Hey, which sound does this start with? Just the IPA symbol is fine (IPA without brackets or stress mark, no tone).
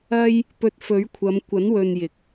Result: ɐ